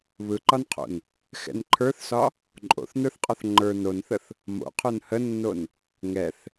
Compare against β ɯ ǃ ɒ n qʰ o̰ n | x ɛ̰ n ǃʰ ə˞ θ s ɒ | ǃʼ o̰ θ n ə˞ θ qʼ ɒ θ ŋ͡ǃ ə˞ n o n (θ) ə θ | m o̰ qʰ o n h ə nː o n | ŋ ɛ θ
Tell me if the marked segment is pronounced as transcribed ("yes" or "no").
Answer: yes